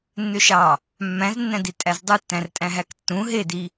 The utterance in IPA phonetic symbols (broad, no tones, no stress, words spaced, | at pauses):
nːøʃɑ | mːæ̃znːæ̃di tʼæzdˤutːæ̃rtʼæ̃ ɦæktːũ ɦedi